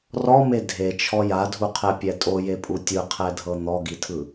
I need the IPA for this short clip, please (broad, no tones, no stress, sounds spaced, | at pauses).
r ɔ m e dʱ e t͡ʃʰ ɔ j a dʱ u qʰ ɛ pʲ ɛ tʼ o j e pʼ u tʲ ɯ qʰ ɛ dʱ ɤ n̪ ɔ ɡ i tʰ ɯ